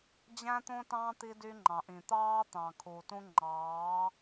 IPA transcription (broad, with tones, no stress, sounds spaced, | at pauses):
d͡ʑ æ̃˦ t̪ õ˦ t ɑ̃˦ t̪ i˧ d y˧ ŋ͡ǃ ɑ̃˨ ʔ ĩ˨ t̪ ɑː˦ t̪ ɑ̃˨ kʰ u˨ t ũ˦ ŋ͡ǃ ɑː˨˦